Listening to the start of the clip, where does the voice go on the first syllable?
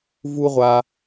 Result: high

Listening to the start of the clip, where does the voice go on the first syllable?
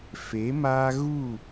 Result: rising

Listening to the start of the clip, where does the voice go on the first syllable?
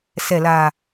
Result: low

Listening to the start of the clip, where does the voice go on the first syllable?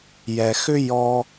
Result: low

